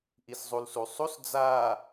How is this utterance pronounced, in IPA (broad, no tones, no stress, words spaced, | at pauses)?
ʔiszˤulsusˤus d͡za